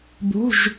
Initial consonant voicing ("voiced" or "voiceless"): voiced